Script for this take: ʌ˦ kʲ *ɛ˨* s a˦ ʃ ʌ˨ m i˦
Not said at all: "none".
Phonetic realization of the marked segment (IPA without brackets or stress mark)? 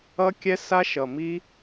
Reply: ɛ˦